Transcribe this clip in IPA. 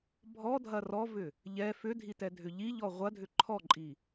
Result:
bʱ ɔ dʱ ɐ r ɔ v ʏ | ʎ ɛ f ʏ dʱ i t ɛ dʱ ʏ ʎ i ʎ ɔ ʁʷ ɐ dʱ ʏ ǃʰ ɔ ǃʼ i

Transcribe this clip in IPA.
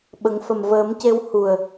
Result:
ɓ ə˨˩˦ ŋ f ə˨˩ m v əː˨˩˦ m c e˧ w h u˨˩ ə̯

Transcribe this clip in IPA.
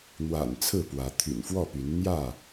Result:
n̪ w a̰˨˩ n t͡sʰ ɹ̩˥˨ p w ä˨˦ t̪ʰ y̰˨˩ n f w ɔ˥˨ p y˨˦ n n̪ j ä˥˨

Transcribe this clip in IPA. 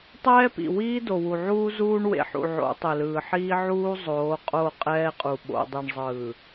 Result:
tˤ ɛː˦ p ḭ˨ w iː˦ d o˨ w u˨ ʕ uː˦ z uː˦ ɳ w ḛ˨ ħ ṵ˨ ʕ o̰˨˦ tˤ e˨ l ɯː˨ ħ iː˦ ʕ uː˦ zˤ oː˨˦ qʼ o˦˨ qʼ ɛː˦ qʼ u˨ ɓ o̰˨ dˤ i˨ ɳ zˤ ɯː˨

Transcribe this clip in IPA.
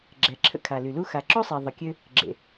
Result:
ɡ͡ǁ ɛ˩ ǁʰ ə̰˥ kʰ a˩ l y˩ l u˥ x a˩ ǁ o˥ sˤ e˩ ðˤ ə˩ kʲ ø˥ | ɡ͡ǁ ḛ˩

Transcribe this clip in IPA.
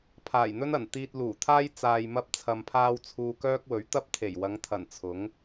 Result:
pʰ aː˨˩ j n̪ ɵ˥ n ɐ˨˩ n t̪ iː˧ t̚ l uː˨˩ t̪ʰ aː˥ j t͡s aː˨ j m ɐ˧ p̚ t͡sʰ ɐ˨ m pʰ aː˧ w t͡sʰ uː˧ k œː˥ k̚ w ɵ˨˥ ɥ t̪ ɐ˥ p̚ t̪ʰ e˨˩ j w ɐ˨˧ ŋ t̪ʰ ɐ˨˩ n t͡sʰ ʊ˨˥ ŋ

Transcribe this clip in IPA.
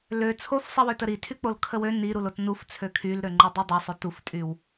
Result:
l ø t͡sʰ o f sˤ i w ø t ə ɾ i tʰ y k͡p o l kʰ ə w ø n i ɾ u l o t n u f t͡sʰ ø kʰ y l ɾ ø ŋ͡ǃ u dˤ y dˤ ø sˤ o t u f tʼ y w

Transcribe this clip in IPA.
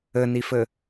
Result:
ɘ n i f ɘ

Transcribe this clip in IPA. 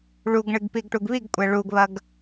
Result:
ɭ u ɡ ɳ ɨ ɡ p i ɡ ʈ u ɡ β i ɡ kʷʼ ɛ ɭ u ɡ β ɐ ɡ

